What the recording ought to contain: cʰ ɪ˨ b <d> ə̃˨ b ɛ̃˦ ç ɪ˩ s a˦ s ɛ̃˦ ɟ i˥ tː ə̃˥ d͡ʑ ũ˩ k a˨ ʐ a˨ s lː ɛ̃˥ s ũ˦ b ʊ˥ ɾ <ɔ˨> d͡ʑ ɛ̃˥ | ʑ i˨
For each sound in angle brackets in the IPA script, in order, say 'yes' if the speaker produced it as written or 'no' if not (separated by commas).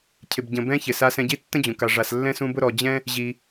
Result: no, yes